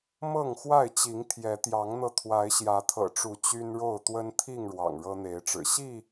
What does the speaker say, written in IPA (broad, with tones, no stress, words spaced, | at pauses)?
mɤ˥˨ŋxwa˥˨ɪ̯t͡ɕi˨˦ŋ t̪ʰjɛ˨˦t̪jɑ˨˦ŋn̪ɤ˧ t̪ʰwa˨˦ɪ̯ɕjä˨˦t̪ʰɤ̰˨˩ʈ͡ʂu˨˦ t͡ɕy˦nɻo˥˨ʊ̯ t̪wə˦n t̪ʰi˥˨ŋ ɻwɑ̰˨˩ŋɻɤ˦n̪e˨˦ɪ̯ʈ͡ʂɻ̩˨˩ ɕi˥˨